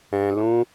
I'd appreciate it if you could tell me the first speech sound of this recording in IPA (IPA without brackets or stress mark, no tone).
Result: ɛ̃